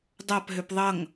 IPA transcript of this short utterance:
dˤapɦøp ðˤʌŋ

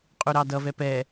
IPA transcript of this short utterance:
qʼuɾɑdʌvɛ pɛ

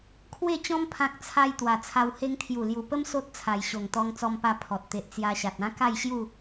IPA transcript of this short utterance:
kʰwe˥˧t͡ɕɔ̃˦m pʰã˦k̚ t͡sʰa˦j t̪wa˨˩t͡sʰa˧w he˧ŋt̪ʰju˨˩lju˨˩pə˦m so˦t̚ t͡sʰa˨˩jɕo˨˩ŋ t̪ɔ˧ŋt͡sɔ˧mpa˧ pʰɔ˨t̚t̪e˨ʔt͡sja˧ɕa˨t̚ ã˦ka˥˧jɕju˥˧

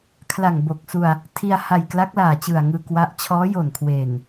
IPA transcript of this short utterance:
kʰla˨˩ŋbo˨˩k̚su˧a̯ | tʰi˧a̯ha˨˩j kla˦˥k̚ laː˨˩t͡ɕɯ˨˩a̯ŋɯː˧ kwa˦˥ʔ t͡ɕʰɔː˦˥jo˨˩nkʰweː˨˩n

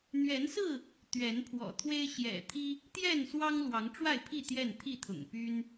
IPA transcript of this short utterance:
n̪ɥɛ˨˦nsɹ̩˥˨ | t̪ɥɛ˨˦npʰwɔ̰˨˩t̪ʰwe˦ɪ̯ ɕjɛ̰˨˩t̪ʰi˦ | t̪jɛ˥˨nswɑ˦ŋ lwɑ˨˦ŋʈ͡ʂwa˥˨ɪ̯pʰi˥˨ t̪jɛ˥˨nt̪ʰi˥˨t̪ʰʊ̰˨˩ŋ py˦n

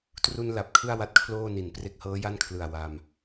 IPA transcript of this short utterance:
tru˧n la˨˩p̚kʰɯ˥˩a̯ wa˥˩t̚kʰloː˥˩ni˨˩n pre˦˥k̚hɤː˦˥ja˥˩nkʰlɯ˨˩a̯ wa˧m

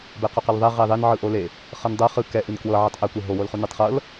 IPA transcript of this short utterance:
bɛqoqɤlðˤɛ ʁeðˤen ʕɯʔole | χɤndˤɤ χɯ kɛ ʔinkwɤʕitˤ ʔɛkʷe ɦowolχu nɯtˤχɤl

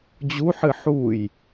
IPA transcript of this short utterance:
d͡ʑuħɨ ħuj

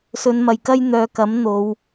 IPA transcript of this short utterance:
sɵ˨˧nmɐ˨jkɐ˥j n̪œː˨kɐ˨˥m n̪o˨˧w

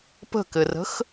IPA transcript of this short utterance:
pə̤kɘrə̤x

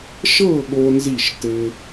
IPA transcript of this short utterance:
ʃɤ˥˨ ɠo˦nzi˥˨ʃ tɘ˦

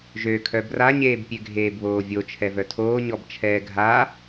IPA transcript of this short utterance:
ʒøkʰœ braɲeːbpʲø ɡʱeːbβoːvʲo t͡ʃʰɛvœtʰoː ɲɔbt͡ʃʰɛːɡʱa

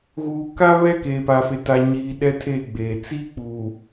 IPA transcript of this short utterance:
ɣuː˨ka˦ βɛ˦ keː˨pa˨fe˨ ta˨ɲiː˨ ɗɛ˦tʰe˦˨ɡ͡beː˨ t͡siː˦k͡puː˨

